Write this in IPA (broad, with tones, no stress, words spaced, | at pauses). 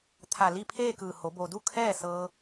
t̪ʰa˧˩ li˥˨pʰeː˥˨kɯː˧˩ ho˩˧bo˩du˥˨ kʰɛː˥˨sɤː˧